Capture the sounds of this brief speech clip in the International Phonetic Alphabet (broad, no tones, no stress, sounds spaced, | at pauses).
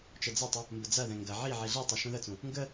t͡ʃ ə d͡z ɐ tˤ ə | m b ə d͡z ɐ ð ɛ̃ ŋ ɡ ɐ ʕ i ʕ i ɮ i tˤ ə ʃ ũ ð ə t͡s ũ | ŋ ɡ ə